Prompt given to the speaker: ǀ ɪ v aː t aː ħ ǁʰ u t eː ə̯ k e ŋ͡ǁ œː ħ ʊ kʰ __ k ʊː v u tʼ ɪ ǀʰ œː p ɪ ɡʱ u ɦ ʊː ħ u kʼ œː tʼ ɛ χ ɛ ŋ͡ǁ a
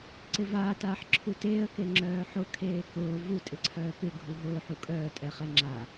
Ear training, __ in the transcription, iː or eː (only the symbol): eː